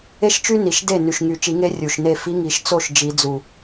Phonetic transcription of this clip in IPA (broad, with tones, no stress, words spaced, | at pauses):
e˥ʃt͡ʃy˥ni˨˩ʃ de˥˩ ny˨˩ʃŋy˨˩˦t͡ʃi˨˩˦ŋe˧˥ rʲu˨˩ʃne˥˩ fi˧˥ŋi˨˩˦ʃ t͡so˥˩ʃ d͡ʒi˨˩˦d͡zu˨˩